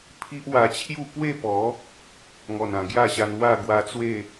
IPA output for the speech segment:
pʰ i˦ ʔ w a˧ t͡ɕʰ j u˥˧ p w e˥˧ p ɔ˨˦ | ŋ ɔ˨˩ n ã˨˩ ɡ j a˥˧ ɕ a˧ n w a˥˧ ɡ w a˧ t͡s w e˥˧

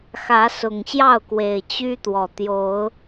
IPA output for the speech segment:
x ä˨˦ s ʊ˨˩ ŋ ɕ j ɑ˥˨ ʊ̯ k w e˨˩ ɪ̯ t͡ɕ y˦ t̪ w ɔ˨˩ t̪ j o˨˦ ʊ̯

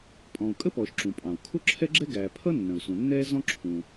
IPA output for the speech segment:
pʼ ɔ̃ː˩ u̯ kʼ ə˥ p ɔː˩ ʃ ǁ ũ˩ pʼ ɑ̃˩ u̯ kʰ ʊ˥ ǁʰ ɛ˥ ɡ͡ǁ ɛ˥ ɡ æː˩ pʰ ʌ˥ nː ə̃˩ u̯ s ũ˩ nː ɛː˥ z ɔ̃˥ ǁʰ ũ˩

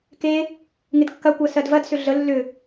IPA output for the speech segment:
k e | ŋ ɪ d kː ɐ kʷ ɜ s ɜ d v ɐ d s ʏ ɮ ə lː ʏ

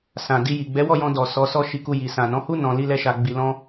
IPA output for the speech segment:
s ã˨ d i˧ j i˨ ɡ͡b ɛ˨˦ w ɔ˦˨ j ɔ̃˧ d ɔ˨ s ɔ˨˦ s ɔ˦˨ ʃ i˧ k u˧ j i˨ s ã˨ n ɔ̃˨˦ h u˦ n ɔ̃˧ l i˦ l ɛ˦ ʃ a˧ ɡ͡b i˧ l ɔ̃˦

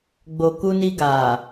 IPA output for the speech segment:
ɡ͡b o˨ k u˧ n i˧ ɡ a˨

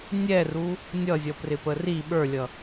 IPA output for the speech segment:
nʲ ɛ r u | nʲ ʌ zʲ ʌ p r ɪ p ə r i ɓ ə˞ lʲ ʌ

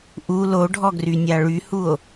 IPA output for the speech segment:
ʔ u l o ɖʱ ɔ ɡ r y nʲ a ɭ y h u o̯

